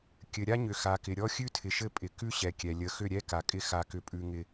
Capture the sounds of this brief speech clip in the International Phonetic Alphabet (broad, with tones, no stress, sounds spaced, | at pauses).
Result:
kʲ ɘ˨ ɾʲ a˦ ɲ ʏ˨ x a˨ k ɪ˨ ɾʲ ɔ˦ xʲ ʉ˦ tʰ ɪ˨ ʃ ɘ˦ pʼ ɪ˨ k ʉ˦ ɕ ɛ˨ kʲ ɛ˨ lʲ ə˨ x ʏ˦˨ ɾʲ ɛ˦ k a˨ kʼ ɪ˦ x a˦ k ʏ˦ pʼ ʉ˦ ŋ ɪ˦